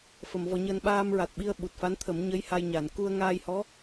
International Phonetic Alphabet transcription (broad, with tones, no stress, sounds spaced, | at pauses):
f ə˨˩˨ m v ɔ˨˩˦ ɲ əː˧ n ɓ aː˧ m ɹ a˨˩ t̚ ɓ i˧ ə̯ ɓ u˨˩ t̚ f a˧˥ n t̪ʰ ə˨˩˦ m ɲ ə˧˥ j h a˧ j ɲ a˨˩˨ n k u˧ ə̯ ŋ aː˧ j h ɔ˧˥